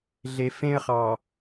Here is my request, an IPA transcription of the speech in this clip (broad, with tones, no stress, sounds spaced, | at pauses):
ɮ e˨ f ẽ˦ ə̯ χ ɑ˨